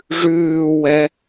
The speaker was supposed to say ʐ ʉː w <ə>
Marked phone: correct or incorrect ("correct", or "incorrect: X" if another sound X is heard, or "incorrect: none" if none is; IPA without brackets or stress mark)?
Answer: incorrect: ɛ